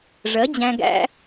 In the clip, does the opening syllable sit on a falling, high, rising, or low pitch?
rising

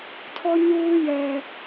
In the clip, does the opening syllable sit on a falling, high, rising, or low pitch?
high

